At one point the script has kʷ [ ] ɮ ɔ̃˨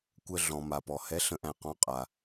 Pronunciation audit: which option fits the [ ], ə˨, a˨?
ə˨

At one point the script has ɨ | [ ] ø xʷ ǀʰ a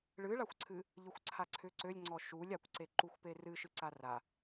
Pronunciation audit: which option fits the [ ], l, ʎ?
ʎ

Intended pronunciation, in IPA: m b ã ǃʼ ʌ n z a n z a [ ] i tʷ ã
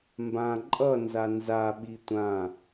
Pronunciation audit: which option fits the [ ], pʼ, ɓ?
ɓ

